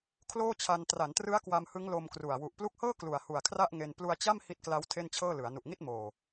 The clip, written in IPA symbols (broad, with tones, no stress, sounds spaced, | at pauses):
kʰ l oː˥˩ t͡ɕʰ a˧ n t r a˩˦ n t r ɯ˦˥ a̯ k w a˧ m h ɯ˦˥ ŋ l o˧ m k r u˨˩ a̯ w u˨˩ ʔ p l u˦˥ k̚ h ɤː˥˩ k l u˨˩ a̯ h u˨˩ a̯ kʰ r a˥˩ ʔ ŋ e˧ n p l u˧ a̯ t͡ɕ a˥˩ m h i˦˥ t̚ k l a˦˥ w tʰ e˥˩ n t͡ɕʰ ɤː˥˩ l ɯ˩˦ a̯ n u˨˩ ʔ ŋ i˥˩ t̚ m oː˨˩